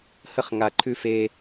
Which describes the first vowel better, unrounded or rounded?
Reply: unrounded